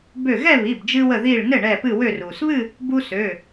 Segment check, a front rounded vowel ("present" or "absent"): present